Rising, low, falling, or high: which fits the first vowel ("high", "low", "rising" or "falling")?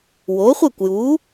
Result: rising